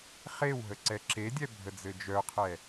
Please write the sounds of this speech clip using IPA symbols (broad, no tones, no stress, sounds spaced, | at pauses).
χ e w ɦ ə ǀ ɛ ǁ e dʲ ɛ bʱ ə d͡z ɘ d͡ʒ œ qʰ ɛ